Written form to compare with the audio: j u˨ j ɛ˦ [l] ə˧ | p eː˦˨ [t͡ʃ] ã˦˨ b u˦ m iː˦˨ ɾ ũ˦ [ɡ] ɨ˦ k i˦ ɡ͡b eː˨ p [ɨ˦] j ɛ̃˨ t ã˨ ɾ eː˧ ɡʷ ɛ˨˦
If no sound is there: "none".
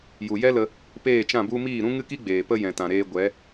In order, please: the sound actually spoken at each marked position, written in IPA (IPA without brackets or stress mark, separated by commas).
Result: l, t͡ʃ, ŋ, ə˦